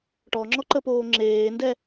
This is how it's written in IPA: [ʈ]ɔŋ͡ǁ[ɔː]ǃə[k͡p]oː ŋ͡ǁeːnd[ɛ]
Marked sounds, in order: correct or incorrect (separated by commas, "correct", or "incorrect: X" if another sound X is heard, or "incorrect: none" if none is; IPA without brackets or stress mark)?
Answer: correct, incorrect: ɔ, incorrect: p, correct